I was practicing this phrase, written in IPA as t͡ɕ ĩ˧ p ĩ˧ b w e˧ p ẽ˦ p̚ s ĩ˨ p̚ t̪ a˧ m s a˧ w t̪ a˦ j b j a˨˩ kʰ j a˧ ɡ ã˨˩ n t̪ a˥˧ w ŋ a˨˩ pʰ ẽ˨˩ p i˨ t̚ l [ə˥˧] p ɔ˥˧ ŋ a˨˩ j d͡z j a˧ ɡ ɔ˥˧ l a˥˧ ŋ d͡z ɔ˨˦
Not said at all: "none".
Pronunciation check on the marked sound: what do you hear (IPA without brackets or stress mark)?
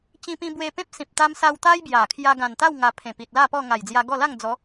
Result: a˥˧